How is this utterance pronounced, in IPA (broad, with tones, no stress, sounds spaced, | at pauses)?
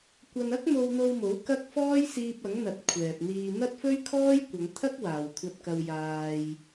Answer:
kʷ ɐ˧ n ɐ˥ k̚ m o˧ w n̪ o˧ w m o˨˥ w k ɐ˥ k̚ f ɔː˥ j s iː˧ p̚ ɐ˨˥ ŋ n̪ ɐ˨ t̚ kʷʰ ɛː˨ p̚ n̪ iː˨ n̪ ɐ˥ t̚ f ɵ˥ ɥ kʰ ɔː˥ j kʷ ɐ˨˧ ŋ t̪ʰ ɐ˥ k̚ w aː˨ w kʷʰ ɐ˧ t̚ k ɐ˧ w j aː˧ j